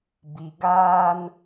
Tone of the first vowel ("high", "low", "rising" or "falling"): low